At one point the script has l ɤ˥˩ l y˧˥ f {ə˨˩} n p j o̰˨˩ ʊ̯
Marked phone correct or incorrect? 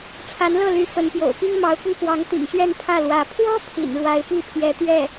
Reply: incorrect